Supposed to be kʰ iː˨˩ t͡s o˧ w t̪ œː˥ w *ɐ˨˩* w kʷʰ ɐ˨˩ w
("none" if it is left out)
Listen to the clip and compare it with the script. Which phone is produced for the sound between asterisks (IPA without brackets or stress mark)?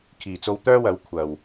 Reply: ɐ˨˥